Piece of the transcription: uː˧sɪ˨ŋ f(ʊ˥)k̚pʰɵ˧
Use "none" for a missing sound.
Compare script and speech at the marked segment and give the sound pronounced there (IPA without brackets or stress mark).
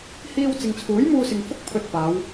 ʊ˥